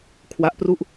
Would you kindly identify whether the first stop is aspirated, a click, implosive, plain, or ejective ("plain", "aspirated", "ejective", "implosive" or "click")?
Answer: aspirated